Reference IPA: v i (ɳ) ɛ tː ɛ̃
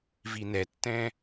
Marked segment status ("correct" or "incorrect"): incorrect